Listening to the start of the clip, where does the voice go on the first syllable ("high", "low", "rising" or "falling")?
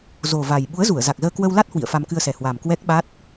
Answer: low